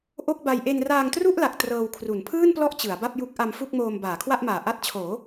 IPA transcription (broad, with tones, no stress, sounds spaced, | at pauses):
ʔ o˥˩ k̚ b a˧ j ʔ e˧ n r aː˧ ŋ t r u˥˩ ʔ l a˨˩ k̚ t r ɤː˧ w kʰ r u˩˦ n pʰ ɯː˥˩ n p l ɔ˦˥ ʔ t͡ɕ ɯ˩˦ a̯ b a˥˩ p̚ j u˦˥ k̚ ʔ a˧ m f u˥˩ k̚ m oː˧ m b aː˩˦ kʰ w a˥˩ ʔ m aː˨˩ ʔ a˦˥ t̚ t͡ɕʰ oː˩˦